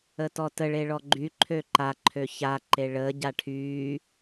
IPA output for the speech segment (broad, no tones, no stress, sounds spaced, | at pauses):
ə t ɔ t ə ɭ e ɭ ɔ ɡ͡ǃ y ǃʰ ø ǃ a ǃʰ ø ç a ǃ e ɭ əː ɟ a ʈʰ yː